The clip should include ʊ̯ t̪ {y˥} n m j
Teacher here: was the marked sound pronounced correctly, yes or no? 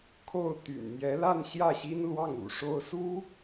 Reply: no